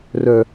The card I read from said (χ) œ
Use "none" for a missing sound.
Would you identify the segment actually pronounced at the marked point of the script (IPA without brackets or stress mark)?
r